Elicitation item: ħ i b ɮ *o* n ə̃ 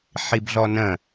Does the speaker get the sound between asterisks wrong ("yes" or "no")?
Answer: yes